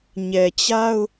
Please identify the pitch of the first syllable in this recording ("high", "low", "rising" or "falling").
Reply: low